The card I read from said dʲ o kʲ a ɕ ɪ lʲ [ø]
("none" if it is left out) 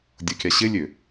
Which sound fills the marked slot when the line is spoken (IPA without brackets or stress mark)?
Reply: ø